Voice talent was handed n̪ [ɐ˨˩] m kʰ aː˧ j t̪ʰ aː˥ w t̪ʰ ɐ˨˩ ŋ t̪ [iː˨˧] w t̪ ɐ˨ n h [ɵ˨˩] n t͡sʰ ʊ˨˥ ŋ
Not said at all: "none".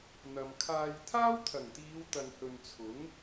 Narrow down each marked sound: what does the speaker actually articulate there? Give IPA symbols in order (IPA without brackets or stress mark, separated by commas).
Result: ɐ˨, iː˨˧, ɵ˨